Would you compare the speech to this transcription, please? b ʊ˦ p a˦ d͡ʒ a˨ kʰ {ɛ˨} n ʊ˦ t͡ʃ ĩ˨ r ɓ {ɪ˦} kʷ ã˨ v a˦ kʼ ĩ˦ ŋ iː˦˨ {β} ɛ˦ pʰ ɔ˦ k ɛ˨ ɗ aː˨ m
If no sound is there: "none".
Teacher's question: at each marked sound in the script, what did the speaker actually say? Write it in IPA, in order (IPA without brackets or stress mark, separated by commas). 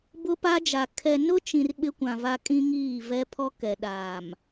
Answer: ɛ˨, ɪ˦, v